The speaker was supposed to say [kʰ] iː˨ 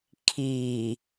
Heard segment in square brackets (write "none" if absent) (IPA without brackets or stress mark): kʰ